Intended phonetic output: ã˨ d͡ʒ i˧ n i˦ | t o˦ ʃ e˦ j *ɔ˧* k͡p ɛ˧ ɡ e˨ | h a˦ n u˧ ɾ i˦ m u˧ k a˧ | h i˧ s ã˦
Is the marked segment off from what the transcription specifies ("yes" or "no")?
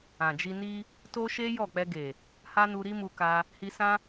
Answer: yes